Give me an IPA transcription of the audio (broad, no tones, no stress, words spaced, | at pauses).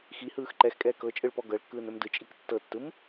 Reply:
xihɯːx ǃɛxkʼɛː kɤt͡ʃʼɯɭpɔ ɡɤɭkːɯːnɵm dɯt͡ʃʼik tːɤtːɯm